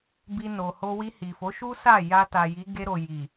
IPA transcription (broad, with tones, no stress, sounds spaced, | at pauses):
b i˧ n o˨ h o˧ w i˧ h i˨ f o˨˦ ʃ u˦ s a˦˨ j a˧ t a˨ j i˨˦ ɡ e˧ ɾ o˨ j i˨